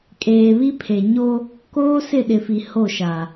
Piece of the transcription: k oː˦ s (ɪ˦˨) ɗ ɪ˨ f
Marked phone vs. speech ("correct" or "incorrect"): correct